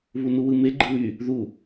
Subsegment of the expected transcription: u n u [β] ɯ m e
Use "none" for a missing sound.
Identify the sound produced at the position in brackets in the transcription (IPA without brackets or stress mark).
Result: w